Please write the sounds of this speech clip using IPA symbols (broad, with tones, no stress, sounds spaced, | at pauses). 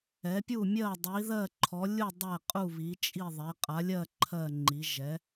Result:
ɛ˩˥ pʲ u˥˨ mʲ ɜ˥˨ dˤ i˩˥ ð ɜ˥˨ ǃʰ ɔ˩˥ lʲ u˥˨ dˤ ɛ˥˨ qʼ u˥˨ β i˩˥ t͡ʃʼ i˥˨ ðˤ ɛ˩˥ qʼ a˩˥ lʲ ɜ˥˨ ǃʰ ɜ˥˨ ŋ͡ǃ i˩˥ ʒ ɛ˩˥